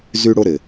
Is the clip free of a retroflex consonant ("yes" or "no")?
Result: no